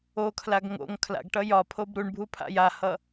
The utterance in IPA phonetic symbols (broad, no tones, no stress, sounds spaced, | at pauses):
o kʰ l a ɡ ŋ o̰ ŋ kʰ l a̰ ɡ ʈ ʌ j ɒ pʰ o b ɾ u ɳ bʱ u pʰ a̰ j a h ʌ